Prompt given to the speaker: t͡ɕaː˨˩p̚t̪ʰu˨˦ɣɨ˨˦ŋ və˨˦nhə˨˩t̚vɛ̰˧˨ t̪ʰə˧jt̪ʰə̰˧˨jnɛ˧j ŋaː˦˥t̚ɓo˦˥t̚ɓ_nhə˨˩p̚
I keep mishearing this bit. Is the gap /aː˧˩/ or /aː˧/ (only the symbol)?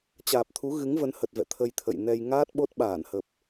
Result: aː˧˩